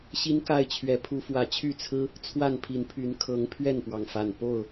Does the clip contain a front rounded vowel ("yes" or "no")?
yes